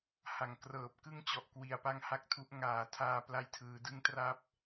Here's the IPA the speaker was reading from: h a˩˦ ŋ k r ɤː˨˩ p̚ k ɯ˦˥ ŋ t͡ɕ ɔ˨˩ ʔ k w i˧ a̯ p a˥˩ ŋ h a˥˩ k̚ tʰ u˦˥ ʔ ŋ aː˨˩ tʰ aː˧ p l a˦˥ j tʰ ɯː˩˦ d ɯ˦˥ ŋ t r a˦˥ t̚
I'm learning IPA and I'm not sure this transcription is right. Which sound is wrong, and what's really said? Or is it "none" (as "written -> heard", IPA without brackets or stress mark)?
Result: t̚ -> p̚